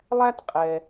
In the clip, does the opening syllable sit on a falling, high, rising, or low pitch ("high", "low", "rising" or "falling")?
high